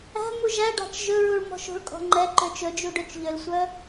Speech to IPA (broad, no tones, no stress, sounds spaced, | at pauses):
æ̤ m u ʒ æ ɖ ɑ̤ t͡ʃ ʒ ɵ ɹ u ɭ m ɔ̤ ʃ o̤ ɭ kʼ ɔ̤ ŋ͡ǃ ɛ ǃ ø t͡ʃ ɵ d͡ʒ u ɖ ø t͡ʃ ʎ ø l sʷ œ